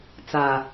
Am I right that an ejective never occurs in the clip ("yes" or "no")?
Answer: yes